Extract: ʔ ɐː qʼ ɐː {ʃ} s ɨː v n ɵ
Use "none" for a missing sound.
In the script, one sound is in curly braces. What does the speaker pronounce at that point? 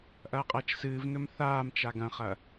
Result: t͡ʃ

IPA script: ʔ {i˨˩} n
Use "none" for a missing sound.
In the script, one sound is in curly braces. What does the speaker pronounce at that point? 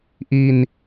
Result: i˧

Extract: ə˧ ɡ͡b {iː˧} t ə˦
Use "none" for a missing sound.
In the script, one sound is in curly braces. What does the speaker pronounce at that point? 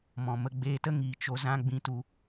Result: eː˧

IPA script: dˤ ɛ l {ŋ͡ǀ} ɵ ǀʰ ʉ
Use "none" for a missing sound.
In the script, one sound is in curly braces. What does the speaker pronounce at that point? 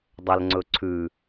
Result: ŋ͡ǀ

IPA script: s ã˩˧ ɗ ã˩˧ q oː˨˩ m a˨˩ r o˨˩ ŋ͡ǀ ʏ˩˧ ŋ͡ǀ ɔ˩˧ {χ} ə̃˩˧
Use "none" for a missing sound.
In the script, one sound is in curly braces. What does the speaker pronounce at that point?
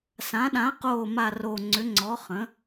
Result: χ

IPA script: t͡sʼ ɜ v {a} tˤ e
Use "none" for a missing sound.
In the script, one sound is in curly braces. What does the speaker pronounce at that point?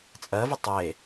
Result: ə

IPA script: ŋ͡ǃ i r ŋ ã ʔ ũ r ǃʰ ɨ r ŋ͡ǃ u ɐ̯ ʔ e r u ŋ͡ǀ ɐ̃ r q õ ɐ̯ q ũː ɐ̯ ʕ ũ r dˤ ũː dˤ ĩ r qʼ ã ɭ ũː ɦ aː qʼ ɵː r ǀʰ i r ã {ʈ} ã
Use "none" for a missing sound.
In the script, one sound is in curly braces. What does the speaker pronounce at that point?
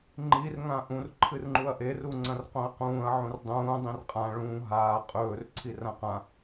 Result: q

